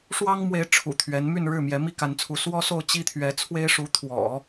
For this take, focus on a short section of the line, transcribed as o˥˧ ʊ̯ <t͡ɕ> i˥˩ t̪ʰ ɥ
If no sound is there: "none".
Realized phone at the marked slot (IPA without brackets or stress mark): t͡ɕ